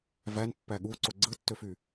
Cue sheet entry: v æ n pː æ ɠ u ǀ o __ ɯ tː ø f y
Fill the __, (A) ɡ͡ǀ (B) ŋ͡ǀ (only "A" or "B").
A